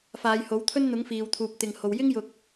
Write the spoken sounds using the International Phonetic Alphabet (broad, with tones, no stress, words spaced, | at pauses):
faː˨˧jho˨˥wt̪ʰɵ˥nn̪ʊ˨˥ŋ fiː˨wt̪ʰuː˨p̚ t̪ɪ˨ŋho˨w jɪ˥ŋjʊ˨k̚